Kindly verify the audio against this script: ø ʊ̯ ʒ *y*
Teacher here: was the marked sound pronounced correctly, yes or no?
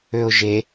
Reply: no